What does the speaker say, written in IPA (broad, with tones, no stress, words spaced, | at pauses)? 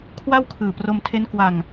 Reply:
kʰwa˥˩wkʰɯː˨˩ pro˧mtʰe˦˥nkwa˧ŋ